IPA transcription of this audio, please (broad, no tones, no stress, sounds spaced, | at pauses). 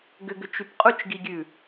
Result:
ɡ ʏ ɡ ʏ t͡ʃ y p qʼ u t͡ʃ ɡ i ɡʲ ʉ